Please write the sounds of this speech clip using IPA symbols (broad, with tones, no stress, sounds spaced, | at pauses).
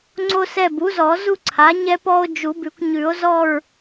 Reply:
ŋ͡ǀ o˦ s ɛ˦˨ b u˩˥ z ɔ˨˩˦ z u˦ ǀʰ a˩˥ ɲ ɛ˦ p ɔ˦ o̯ d͡ʒ u˨˩˦ b ʉ˨˩˦ kʷ ɲ ʉ˨˩˦ o̯ z ɔ˦˨ ɹ